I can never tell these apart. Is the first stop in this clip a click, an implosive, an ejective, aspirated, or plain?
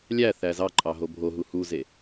click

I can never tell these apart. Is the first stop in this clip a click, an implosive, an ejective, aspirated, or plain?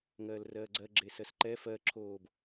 click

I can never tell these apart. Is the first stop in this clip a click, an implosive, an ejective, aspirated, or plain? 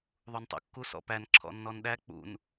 plain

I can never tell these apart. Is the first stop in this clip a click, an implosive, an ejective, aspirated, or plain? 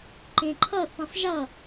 click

